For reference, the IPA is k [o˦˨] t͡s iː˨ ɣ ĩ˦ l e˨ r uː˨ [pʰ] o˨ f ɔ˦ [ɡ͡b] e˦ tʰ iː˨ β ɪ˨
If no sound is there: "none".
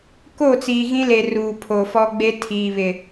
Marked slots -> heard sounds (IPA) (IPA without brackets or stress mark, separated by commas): o˦˨, pʰ, ɡ͡b